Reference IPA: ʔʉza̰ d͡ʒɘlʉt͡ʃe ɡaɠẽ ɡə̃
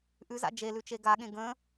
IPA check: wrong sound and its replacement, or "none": ɘ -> e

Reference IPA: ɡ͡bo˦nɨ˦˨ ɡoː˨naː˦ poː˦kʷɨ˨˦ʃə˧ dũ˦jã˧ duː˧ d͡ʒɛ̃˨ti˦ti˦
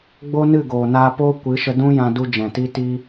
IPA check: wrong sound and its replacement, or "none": uː˧ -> u˧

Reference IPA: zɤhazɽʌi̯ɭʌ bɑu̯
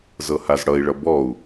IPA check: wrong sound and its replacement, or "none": ɑ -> ɔ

